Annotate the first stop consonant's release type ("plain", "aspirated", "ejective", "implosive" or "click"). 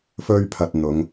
aspirated